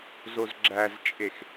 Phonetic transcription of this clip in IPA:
z o z ɡ͡ǁ æ z t͡ʃʼ e x

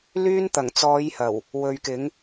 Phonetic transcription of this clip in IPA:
l yː˧ n t̪ ɐ˨˩ ŋ t͡s ɔː˨˧ j h ɐ˨˩ w | w ɵ˨ ɥ k ɪ˨˧ ŋ

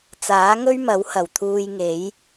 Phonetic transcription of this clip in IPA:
t͡s aː˨˥ ŋ ɵ˥ ɥ m ɐ˨˥ w h ɐ˨˩ w t̪ʰ uː˧ j ŋ e˨˥ j

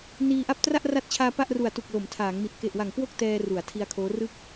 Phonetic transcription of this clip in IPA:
n iː˧ ʔ a˥˩ p̚ t r a˥˩ ʔ r a˦˥ t̚ t͡ɕʰ aː˧ p a˥˩ ʔ r u˨˩ a̯ t u˨˩ k̚ l o˩˦ m tʰ aː˩˦ ŋ m i˨˩ t̚ k e˨˩ ʔ w a˨˩ ŋ k w o˥˩ k̚ t ɛː˧ r u˩˦ a̯ tʰ i˧ a̯ kʰ oː˦˥ r ɯ˥˩ k̚

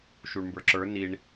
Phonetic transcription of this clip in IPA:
ʃ u ɳ m b ə˞ ǁ ə˞ n i ɳ

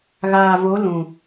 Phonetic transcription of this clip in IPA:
ɣ aː˨ v o˨˦ l ũ˨

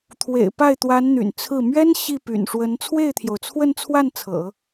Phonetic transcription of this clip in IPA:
t̪ʰ w ḛ˨˩ ɪ̯ p a˥˩ ɪ̯ t̪ w a˧˥ n n̪ y̰˨˩ n t͡sʰ ɹ̩˥˩ m ɥ ɛ˥ n ɕ i˥˩ p y̰˨˩ n ʂ w ə˧˥ n t͡sʰ w e˥˩ ɪ̯ t̪ʰ j o˩ ʊ̯ t͡sʰ w ə˥˧ n t͡sʰ w a˥˩ n t͡sʰ ɤ̰˨˩˦

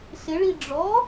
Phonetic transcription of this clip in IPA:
s ɪ ɭ i ɖ͡ʐ ɔ

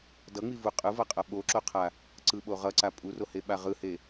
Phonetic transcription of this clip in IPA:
d ʌ ŋ͡m i v u qʼ ɯ v ʌ qʼ ʌ ɓ o ǁ o qʰ a | ǀ ɯ ɓ o ʁ ʌ ǀ a pʼ u r o h e ɓ a ʁ ɯ h e

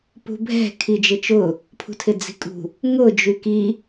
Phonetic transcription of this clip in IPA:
p ṳ bʱ ɛ̤ kʰ i d͡ʒ ɪ t͡ʃ ʊ | pʰ ṳ tʰ ɪ d͡z i̤ kʼ ṳ | ŋ ʊ d͡ʒ y k i

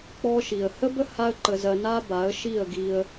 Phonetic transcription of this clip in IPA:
k͡p ɔ˧ ʃ i˨ ə̯ h ə˦ b ə˦ h a˦ ə̯ ǃ ə˧ z ɜ˧ n a˦ b a˨˦ ə̯ ʃ i˦˨ ə̯ ɡ i˧ ə̯

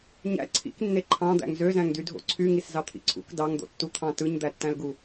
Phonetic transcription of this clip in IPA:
ɲ æ̰ ǀʰ ḭ k nː e ǃʰ ɑ̃ d̪ æ̰ ŋ z ø z æ̃ ŋ d y dʱ o̰ ǀʰ y ŋ i s z ɑ t̪ʰ ḭ ǀʰ ṵ k d ɑ ŋ d̪ o̰ tː u t̪ʰ ɑ̃ t ɯ ɲ d̪ æ tː æ̃ l ɡ u

